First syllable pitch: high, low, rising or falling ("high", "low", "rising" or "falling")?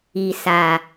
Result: low